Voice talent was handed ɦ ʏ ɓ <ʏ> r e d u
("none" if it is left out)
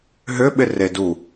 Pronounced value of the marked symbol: ɪ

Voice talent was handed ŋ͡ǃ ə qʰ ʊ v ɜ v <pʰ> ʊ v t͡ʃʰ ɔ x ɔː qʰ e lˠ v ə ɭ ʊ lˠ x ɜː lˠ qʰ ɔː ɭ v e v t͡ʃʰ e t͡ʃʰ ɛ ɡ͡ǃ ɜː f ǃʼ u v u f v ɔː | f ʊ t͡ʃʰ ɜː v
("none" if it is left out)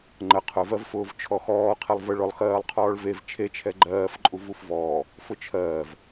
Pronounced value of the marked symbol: f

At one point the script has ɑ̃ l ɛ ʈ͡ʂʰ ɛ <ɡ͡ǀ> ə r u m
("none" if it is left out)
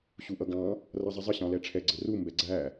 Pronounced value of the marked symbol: ɡ͡ǀ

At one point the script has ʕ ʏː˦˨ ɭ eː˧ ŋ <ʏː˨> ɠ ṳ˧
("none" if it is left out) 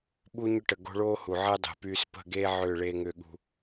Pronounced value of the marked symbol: ʏː˧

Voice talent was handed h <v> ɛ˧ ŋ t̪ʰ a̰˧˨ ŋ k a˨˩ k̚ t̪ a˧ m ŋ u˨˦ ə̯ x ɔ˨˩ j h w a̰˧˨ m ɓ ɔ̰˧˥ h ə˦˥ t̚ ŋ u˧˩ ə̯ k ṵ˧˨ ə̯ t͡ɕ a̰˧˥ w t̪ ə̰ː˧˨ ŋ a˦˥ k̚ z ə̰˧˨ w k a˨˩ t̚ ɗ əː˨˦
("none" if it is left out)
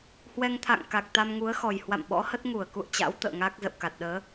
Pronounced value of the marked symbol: w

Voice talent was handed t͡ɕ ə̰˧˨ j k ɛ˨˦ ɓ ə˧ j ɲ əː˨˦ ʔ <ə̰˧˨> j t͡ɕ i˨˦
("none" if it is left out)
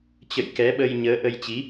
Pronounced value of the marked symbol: ə˧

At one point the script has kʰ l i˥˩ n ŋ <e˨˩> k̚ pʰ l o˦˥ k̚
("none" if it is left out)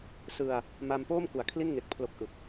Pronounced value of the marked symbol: e˨˩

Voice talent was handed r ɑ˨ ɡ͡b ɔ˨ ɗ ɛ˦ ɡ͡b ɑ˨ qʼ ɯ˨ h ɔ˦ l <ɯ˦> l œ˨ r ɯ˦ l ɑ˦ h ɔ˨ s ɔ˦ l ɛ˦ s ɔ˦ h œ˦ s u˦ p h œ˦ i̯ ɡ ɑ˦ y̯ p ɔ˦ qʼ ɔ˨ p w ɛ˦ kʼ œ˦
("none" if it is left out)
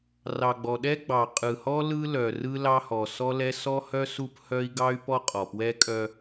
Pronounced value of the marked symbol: ɯ˦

